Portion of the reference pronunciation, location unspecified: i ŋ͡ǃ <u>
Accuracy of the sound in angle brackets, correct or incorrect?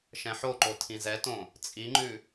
incorrect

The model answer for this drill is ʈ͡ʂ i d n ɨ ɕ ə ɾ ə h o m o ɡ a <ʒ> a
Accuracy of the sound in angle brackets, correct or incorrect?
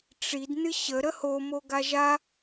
correct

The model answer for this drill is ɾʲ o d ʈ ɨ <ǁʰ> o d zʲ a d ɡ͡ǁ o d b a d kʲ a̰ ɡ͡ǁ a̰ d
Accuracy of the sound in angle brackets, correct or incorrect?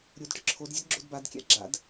correct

